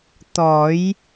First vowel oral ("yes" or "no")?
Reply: yes